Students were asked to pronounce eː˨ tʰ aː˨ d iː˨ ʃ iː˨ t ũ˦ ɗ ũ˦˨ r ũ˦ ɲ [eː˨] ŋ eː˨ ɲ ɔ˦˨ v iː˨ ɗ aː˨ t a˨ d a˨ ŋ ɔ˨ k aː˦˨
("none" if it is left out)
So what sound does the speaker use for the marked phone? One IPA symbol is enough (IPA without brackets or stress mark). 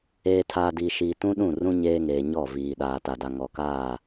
eː˦